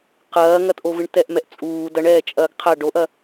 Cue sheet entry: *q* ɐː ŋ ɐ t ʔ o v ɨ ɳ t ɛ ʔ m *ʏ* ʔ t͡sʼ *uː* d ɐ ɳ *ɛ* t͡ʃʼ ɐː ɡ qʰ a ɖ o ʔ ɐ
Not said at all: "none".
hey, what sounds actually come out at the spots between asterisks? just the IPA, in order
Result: q, ɛ, uː, ɛː

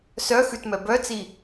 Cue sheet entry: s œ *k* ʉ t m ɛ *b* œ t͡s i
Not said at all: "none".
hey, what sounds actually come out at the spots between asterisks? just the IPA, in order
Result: x, b

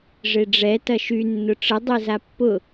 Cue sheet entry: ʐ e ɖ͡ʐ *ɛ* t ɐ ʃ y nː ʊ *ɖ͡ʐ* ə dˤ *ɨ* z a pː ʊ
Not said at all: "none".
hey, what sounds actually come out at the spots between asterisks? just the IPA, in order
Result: ɛ, ʈ͡ʂ, e

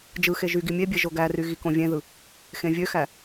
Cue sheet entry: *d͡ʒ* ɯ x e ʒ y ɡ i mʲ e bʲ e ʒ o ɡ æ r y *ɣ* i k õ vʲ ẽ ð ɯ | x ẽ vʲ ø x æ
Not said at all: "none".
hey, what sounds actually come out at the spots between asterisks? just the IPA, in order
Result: d͡ʒ, ɣ

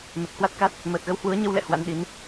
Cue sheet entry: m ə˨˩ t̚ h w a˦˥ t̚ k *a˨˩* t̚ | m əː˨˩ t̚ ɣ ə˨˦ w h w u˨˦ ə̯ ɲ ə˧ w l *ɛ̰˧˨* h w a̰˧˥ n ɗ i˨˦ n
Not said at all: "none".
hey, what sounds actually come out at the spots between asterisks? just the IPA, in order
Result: a˦˥, ɛ̰˧˨

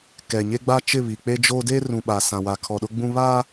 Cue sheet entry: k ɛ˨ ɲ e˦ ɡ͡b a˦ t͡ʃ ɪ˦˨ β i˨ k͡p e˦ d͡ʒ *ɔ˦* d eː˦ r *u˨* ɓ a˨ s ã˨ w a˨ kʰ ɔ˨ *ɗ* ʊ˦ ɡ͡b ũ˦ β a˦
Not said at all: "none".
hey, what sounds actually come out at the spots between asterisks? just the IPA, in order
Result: o˦, ũ˨, ɗ

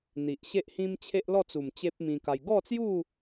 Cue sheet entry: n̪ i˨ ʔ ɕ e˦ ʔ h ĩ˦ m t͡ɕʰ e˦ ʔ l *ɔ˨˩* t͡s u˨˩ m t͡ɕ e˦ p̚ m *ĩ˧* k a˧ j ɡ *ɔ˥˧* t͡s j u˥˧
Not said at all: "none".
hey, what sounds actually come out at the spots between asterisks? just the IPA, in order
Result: ɔ˥˧, ĩ˧, ɔ˥˧

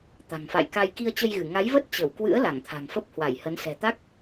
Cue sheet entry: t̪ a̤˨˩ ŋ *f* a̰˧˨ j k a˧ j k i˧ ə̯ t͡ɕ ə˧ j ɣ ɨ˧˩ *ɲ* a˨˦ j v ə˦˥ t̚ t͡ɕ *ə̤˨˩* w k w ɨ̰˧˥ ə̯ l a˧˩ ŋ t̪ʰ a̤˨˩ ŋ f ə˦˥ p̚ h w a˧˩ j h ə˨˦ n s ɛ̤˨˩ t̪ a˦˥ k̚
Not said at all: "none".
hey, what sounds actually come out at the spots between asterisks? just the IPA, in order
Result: f, ŋ, ə˧˩

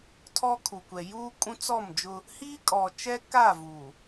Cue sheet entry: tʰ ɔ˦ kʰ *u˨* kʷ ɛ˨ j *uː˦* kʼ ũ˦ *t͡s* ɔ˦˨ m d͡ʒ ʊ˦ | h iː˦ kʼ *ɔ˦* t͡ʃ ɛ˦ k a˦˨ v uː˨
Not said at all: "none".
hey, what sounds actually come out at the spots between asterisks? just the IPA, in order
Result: u˨, uː˦, t͡s, ɔ˨

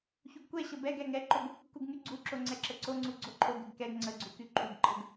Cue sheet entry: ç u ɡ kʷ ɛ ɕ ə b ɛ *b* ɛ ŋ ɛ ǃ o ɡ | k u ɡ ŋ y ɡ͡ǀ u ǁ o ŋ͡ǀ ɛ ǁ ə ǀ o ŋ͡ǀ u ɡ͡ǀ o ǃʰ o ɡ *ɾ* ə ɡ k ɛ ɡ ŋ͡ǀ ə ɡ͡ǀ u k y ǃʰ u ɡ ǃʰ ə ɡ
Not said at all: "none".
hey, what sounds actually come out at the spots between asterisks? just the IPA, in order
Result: ɡ, ɾ

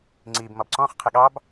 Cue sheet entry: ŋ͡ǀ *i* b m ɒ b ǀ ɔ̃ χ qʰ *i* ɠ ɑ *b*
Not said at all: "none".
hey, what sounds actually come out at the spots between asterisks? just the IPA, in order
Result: i, ɪ, b

